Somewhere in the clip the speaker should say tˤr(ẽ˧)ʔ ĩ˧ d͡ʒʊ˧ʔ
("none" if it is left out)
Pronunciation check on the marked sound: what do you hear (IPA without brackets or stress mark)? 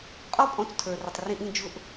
ĩ˧